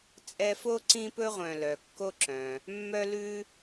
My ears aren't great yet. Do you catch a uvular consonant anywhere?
yes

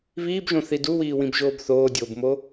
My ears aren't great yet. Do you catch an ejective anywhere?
no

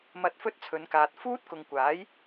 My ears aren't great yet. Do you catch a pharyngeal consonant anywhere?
no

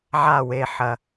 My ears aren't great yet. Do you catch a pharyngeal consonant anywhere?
yes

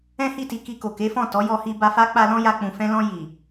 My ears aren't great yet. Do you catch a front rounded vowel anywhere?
no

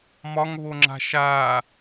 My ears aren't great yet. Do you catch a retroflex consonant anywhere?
no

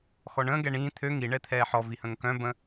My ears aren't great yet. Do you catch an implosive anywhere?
no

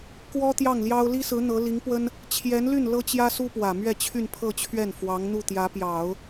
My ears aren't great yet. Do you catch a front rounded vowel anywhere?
yes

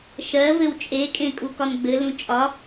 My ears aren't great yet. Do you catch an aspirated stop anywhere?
no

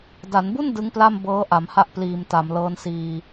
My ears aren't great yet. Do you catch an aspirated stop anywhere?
no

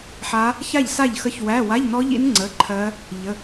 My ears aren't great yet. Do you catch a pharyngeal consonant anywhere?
yes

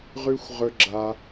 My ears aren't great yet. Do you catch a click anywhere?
yes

